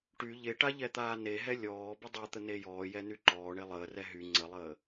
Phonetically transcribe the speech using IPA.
ʈ y ʎ e ʈ a ʎ ɛ t̪ aː n e ɦ ɛ lʲ ɔː b ə dˤ a t̪ ə n e j ɔː j ɛ n y ǃ ɔː ɳ e lˠ əː r ɛ ɦ y ŋ͡ǀ ə lˠ əː

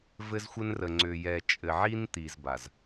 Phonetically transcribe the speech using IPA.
v ɘ˦ z xʷ ɘ˦ n r ə˨ ŋ͡ǀ ʏ˨ j ɛ˨ t͡ʃʼ ɘ˨ ʕ i˦ n t̪ i˨ z b a˨ z

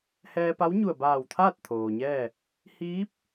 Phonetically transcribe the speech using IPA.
h ɛː˧ p a˧˥ w ɲ u˧˩ ə̯ b aː˧˩ w t̪ʰ aː˥˨ t̚ t̪ʰ oː˩ ɲ ɛː˥˨ | h iː˧˥ p̚

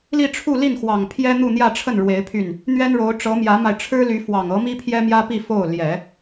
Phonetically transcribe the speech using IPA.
l i˥˧ ʈ͡ʂʰ u˥˧ l i˥˩ n x w ɑ˨˩ ŋ pʰ j ɛ˥ n̪ u˥˧ n̪ j ä˥˧ ʈ͡ʂʰ ə˥˩ n ɻ w e˧˥ ɪ̯ pʰ y˥˩ n | n̪ ɥ ɛ˥ n ɻ o˧˥ ʊ̯ ʈ͡ʂ ɤ˧˥ m j ä˧˥ m a˧ ɪ̯ ʈ͡ʂʰ ɻ̩˥ l y˧˥ f w ɑ˨˩ ŋ ɤ˧˥ m i˥ pʰ j ɛ˥ m j ä˥ p i˥˧ f o˥˩ ʊ̯ l j ɛ˨˩˦

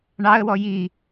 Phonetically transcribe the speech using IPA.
ɳ ɑ ə̯ w ɔ j i

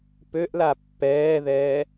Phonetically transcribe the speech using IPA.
p ø ʔ l a pː ɛː ð ɛː

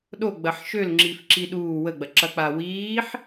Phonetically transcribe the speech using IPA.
ɗ o ɡ͡b ɐ ħ ʃ ø l ŋ͡ǁ i f ǁ i ɗ uː w ə ɡ͡b ɐ ǁ ɐ k͡p a w iː ħ

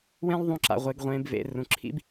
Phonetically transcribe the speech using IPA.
w ẽ˦ lˠ ðˤ ũ˧ ǁ a̰˨ ʁʷ e˧ ɡ ʁʷ ẽː˧ b v ḛ˧ r ũ˨ ǁʰ ḭ˦ b

